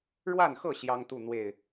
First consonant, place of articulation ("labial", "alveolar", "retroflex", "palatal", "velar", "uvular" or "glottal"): retroflex